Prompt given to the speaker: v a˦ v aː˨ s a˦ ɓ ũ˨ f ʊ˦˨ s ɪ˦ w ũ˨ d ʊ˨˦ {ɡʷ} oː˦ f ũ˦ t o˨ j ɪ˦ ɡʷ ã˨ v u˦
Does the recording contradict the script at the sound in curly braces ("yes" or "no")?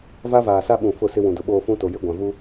yes